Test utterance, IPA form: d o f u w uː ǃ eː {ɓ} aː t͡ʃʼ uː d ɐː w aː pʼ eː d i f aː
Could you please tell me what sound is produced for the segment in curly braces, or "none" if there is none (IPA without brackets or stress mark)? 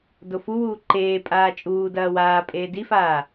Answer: pʼ